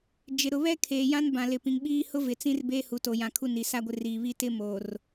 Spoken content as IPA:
d͡ʒ ɪ˨ ɾ ʊ˨ β ɛ˦ kʰ eː˨ j ã˦ n b ã˨ l ɪ˨ p ĩ˨ ŋ ɓ iː˦ h ʊ˦ v ɪ˨ t͡s ĩ˦ r b eː˦ h u˨ t o˨ j ã˨ kʰ u˦ n i˨ s a˦ ɡʷ ɪ˦ r iː˨ β i˦ t ɪ˦ m oː˨ r

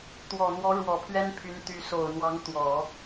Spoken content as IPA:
t̪ w ɔ˨˩ n̪ w ɔ˧˥ ɻ w ɔ˨˩ pʰ ɥ ɛ˥ n pʰ y˧˥ n t̪ y˧˥ s o˨˩ ʊ̯ n̪ w ɑ˧˥ ŋ t̪ w ɔ˨˩˦

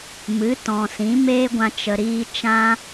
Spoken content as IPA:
m ɨ˨˦ t ɔ̃˨ s ĩ˨˦ m eː˦ ɡʷ ã˧ t͡ʃ ə˨ ɾ iː˧ t͡ʃ ã˦

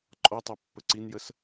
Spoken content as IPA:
ǃʼ ɔ tˤ e pː ə ǀ i n j ə s

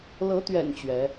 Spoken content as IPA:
l ɤ˨˦ t̪ ɥ ɛ̰˨˩ n t͡ɕ ɥ ɛ˨˦

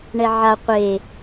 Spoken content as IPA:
ɳ ɛ ʕ a qʷ e

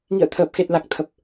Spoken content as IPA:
ŋ ḭ˧˨ ə̯ t̪ʰ əː˨˩ p̚ x e˨˩ t̚ l a˨˩ k̚ t̪ʰ ə˨˩ p̚

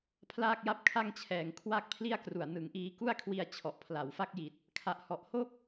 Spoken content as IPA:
pʰ l aː˥˩ k̚ j a˥˩ p̚ kʰ a˥˩ ŋ t͡ɕʰ ɛː˨˩ ŋ kʰ w aː˥˩ k̚ pʰ l i˥˩ a̯ k r u˨˩ a̯ n ɯ˩˦ ŋ ʔ iː˧ k u˥˩ a̯ kʰ w i˧ a̯ t͡ɕʰ ɔ˨˩ ʔ pʰ l a˩˦ w f a˦˥ k̚ j i˨˩ t̚ | kʰ a˨˩ ʔ h ɔ˨˩ ʔ h o˥˩ k̚

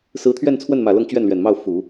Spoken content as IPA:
s ɹ̩˧˥ t̪ʰ ɥ ɛ˥˧ n t͡sʰ w ə˥˩ n m ä˨˩ l ɤ˥˧ ŋ t͡ɕ ɥ ɛ˥˩ n l ɥ ɛ˨˩ n m ɑ˥˩ ʊ̯ f u˨˩˦

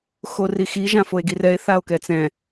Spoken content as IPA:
x o r i x i ʒ ã f o e̯ ɡ i r ɛ e̯ θ a o̯ k ɛ t͡s ɛ̃

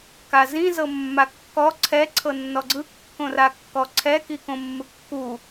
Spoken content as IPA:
k a z ĩ z ɤ mː a kː ɔ ǀʰ ɛ ǀʰ ɤ nː ɔ ɡ͡ǀ ɯ kː õ r a kː ɔ ǀʰ ɛ k i k õ mː ɯ kː u

